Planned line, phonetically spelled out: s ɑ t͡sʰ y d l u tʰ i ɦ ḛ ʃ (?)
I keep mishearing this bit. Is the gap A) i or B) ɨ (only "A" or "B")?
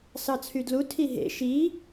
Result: A